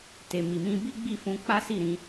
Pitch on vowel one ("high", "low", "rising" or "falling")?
low